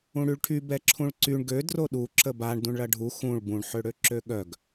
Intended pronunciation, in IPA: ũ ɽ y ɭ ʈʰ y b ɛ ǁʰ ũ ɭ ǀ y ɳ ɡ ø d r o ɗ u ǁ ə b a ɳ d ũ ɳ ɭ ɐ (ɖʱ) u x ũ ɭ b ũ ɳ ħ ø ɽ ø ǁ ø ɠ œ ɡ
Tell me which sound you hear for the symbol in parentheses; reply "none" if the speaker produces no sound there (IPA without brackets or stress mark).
ɖʱ